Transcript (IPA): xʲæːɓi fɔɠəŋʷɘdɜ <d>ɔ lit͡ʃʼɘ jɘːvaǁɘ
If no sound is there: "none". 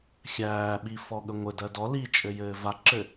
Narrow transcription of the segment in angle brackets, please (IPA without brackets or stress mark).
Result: d